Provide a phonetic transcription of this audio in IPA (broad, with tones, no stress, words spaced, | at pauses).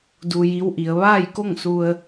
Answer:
du˧ji˧˥wʔi˩˧ə̯ ʋaː˥˨j ko˥˨ŋsu˧ə̯